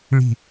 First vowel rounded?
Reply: no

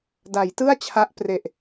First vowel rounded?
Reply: no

